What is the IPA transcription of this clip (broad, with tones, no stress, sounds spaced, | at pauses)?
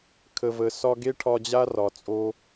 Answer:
kʰ ə˨ v ə˨ s ɒ˧ ɡ e˦ ʈʰ ɒ˧ d͡ʑ a˦ r ɒ˨ t͡sʼ o˧